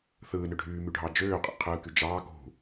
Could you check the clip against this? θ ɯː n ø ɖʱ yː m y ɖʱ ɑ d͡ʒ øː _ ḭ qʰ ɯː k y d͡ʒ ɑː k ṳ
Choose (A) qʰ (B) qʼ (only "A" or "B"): B